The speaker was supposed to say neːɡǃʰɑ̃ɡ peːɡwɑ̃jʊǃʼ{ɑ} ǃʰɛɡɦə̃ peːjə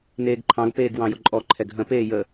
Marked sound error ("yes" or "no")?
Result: yes